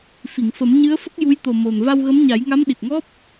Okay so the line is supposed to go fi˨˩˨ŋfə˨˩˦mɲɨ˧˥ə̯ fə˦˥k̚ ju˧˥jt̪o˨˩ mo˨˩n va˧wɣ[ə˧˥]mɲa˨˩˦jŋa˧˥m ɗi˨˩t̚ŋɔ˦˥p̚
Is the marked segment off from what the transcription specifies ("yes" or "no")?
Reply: no